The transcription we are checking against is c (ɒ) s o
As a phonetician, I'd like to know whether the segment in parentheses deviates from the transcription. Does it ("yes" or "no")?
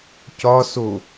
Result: no